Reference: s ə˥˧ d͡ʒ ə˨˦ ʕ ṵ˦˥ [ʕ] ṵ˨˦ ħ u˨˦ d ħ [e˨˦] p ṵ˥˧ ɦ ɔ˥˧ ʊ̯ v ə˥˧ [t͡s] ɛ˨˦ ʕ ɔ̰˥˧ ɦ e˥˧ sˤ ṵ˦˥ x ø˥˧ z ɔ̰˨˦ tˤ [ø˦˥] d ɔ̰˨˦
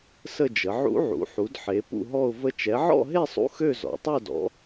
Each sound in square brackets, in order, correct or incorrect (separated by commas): correct, correct, incorrect, incorrect